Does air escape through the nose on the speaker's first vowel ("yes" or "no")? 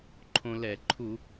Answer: yes